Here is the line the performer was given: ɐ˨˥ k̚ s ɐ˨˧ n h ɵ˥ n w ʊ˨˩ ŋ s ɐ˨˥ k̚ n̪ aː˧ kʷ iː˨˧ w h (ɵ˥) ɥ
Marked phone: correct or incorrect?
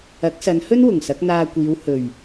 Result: incorrect